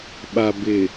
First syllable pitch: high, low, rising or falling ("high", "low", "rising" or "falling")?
low